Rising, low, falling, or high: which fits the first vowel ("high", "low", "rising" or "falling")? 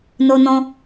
high